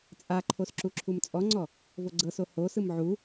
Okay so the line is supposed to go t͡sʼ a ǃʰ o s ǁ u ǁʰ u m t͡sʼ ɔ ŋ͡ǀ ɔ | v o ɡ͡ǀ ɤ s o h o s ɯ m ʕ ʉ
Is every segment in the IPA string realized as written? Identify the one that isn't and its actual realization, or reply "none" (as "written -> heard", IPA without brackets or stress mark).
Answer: ʉ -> u